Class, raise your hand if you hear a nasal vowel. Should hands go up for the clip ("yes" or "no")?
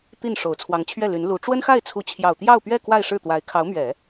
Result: no